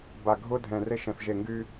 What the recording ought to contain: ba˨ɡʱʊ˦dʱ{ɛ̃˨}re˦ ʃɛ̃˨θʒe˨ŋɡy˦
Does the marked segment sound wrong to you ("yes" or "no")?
no